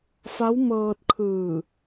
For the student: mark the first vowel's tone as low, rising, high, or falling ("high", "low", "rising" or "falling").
rising